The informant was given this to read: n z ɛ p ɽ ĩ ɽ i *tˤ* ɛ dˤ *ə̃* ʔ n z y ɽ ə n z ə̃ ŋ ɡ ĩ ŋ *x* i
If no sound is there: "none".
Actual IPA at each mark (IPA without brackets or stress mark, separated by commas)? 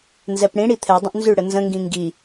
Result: t̪ʰ, ə̃, ɡ